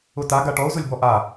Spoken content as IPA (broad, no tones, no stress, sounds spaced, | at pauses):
ʊ t a ɡ a ʈ ɔ ʊ̯ z ʊ lʲ b ɔ ʔ a